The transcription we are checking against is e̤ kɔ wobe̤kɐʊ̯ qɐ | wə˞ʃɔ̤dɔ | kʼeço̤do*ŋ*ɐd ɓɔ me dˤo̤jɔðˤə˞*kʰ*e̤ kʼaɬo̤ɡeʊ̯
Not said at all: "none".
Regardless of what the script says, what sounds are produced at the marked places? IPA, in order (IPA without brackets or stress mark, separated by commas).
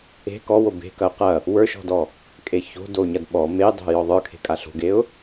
ɲ, kʰ